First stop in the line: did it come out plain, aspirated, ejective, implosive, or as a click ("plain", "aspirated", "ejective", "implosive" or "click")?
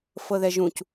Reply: plain